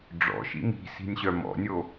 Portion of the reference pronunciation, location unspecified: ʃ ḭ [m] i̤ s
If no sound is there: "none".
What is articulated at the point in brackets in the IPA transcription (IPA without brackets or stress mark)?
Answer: m